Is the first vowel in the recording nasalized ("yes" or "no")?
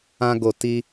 yes